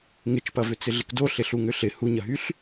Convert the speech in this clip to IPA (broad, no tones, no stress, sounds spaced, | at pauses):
ŋ ɪ t͡ʃ p ɐ v ʏ t͡s ɪ ɮ ɪ k d o ɬ ɪ ɬ u ŋ ʏ ɬ ɪ h u ɲ ɐ ɦ y ɬ